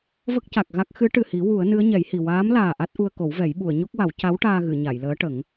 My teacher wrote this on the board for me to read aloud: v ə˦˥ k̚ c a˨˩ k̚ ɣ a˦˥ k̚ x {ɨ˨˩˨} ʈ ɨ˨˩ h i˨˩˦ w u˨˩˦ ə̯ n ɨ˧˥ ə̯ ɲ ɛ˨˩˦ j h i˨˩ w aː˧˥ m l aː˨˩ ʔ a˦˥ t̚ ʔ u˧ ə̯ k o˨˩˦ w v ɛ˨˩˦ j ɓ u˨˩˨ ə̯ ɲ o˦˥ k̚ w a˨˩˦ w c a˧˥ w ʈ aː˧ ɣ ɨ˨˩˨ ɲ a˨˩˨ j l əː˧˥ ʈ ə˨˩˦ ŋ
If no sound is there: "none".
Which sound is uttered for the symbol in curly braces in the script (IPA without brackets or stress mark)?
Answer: ɨ˧˥